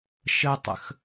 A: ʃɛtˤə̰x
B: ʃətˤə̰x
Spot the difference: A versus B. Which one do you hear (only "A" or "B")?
B